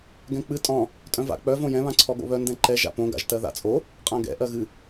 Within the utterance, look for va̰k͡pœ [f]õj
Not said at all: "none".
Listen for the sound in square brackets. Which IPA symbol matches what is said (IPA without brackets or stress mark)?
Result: v